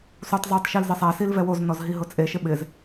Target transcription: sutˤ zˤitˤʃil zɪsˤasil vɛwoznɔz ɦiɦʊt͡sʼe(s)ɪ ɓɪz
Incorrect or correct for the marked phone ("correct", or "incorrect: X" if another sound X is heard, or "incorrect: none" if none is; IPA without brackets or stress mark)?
incorrect: ʃ